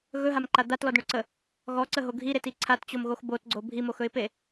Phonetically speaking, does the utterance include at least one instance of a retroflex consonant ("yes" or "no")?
yes